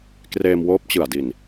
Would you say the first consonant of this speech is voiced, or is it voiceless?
voiceless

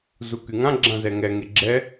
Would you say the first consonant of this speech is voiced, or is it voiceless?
voiced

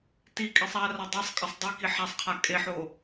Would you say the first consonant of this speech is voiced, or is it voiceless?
voiceless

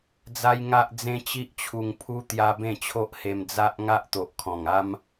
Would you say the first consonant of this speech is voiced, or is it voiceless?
voiced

